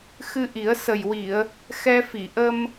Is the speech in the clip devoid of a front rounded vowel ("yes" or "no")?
yes